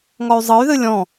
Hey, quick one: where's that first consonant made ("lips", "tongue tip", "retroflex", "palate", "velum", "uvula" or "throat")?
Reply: velum